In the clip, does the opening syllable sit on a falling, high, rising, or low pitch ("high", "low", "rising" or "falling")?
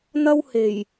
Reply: high